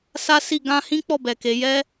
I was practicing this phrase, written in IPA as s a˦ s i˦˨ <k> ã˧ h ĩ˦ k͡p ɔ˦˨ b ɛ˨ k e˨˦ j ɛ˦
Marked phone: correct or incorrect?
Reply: incorrect